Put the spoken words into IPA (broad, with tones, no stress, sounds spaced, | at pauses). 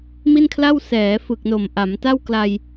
m i˥˩ n kʰ l a˥˩ w s ɛː˩˦ f ɯ˨˩ k̚ n o˨˩ m ʔ a˩˦ m t a˥˩ w k l a˧ j